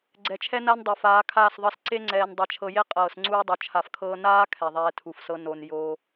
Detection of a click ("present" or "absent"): present